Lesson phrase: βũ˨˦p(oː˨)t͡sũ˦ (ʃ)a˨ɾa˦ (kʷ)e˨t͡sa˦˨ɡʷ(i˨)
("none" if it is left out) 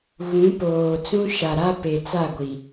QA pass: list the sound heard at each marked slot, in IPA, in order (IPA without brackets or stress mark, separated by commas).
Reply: oː˨, ʃ, p, i˨